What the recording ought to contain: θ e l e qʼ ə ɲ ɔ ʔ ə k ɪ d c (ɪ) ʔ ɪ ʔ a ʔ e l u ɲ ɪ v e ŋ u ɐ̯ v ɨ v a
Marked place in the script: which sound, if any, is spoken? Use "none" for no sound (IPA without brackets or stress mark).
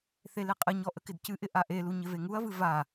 ɨ